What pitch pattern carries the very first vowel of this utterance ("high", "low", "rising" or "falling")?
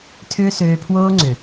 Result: high